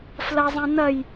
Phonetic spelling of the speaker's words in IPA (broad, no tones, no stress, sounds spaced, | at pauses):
f l ɐ zˤ ɛ̃ n ɐ j